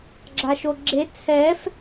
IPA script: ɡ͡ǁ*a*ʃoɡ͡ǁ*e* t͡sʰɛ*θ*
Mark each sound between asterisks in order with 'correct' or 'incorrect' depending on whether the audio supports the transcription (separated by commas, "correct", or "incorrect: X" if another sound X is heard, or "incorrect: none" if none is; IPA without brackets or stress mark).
correct, correct, incorrect: f